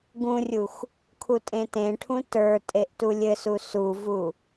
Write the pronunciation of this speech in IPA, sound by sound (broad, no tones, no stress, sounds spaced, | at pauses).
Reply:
ɡ ũ rʲ u x | kʰ u tʼ ẽ t ẽ ʈʰ ũ t ə˞ tʼ e ʔ t u lʲ ɘ s u s u v u